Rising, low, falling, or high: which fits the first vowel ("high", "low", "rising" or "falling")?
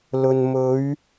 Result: low